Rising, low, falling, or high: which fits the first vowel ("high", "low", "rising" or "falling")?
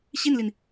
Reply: falling